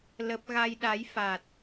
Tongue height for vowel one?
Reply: mid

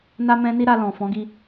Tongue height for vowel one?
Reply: low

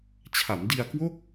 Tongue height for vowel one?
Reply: low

